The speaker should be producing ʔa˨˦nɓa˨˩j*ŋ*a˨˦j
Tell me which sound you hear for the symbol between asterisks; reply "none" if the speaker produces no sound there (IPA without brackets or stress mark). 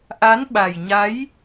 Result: ɲ